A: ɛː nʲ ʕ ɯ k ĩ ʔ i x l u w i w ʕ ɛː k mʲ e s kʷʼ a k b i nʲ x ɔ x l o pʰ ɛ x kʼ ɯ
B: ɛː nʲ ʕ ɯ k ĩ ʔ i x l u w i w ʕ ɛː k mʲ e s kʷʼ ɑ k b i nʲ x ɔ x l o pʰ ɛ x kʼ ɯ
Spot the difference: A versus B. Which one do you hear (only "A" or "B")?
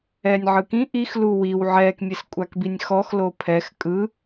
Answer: A